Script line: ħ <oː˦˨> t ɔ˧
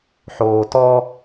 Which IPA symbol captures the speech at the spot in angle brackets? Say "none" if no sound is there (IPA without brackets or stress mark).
oː˨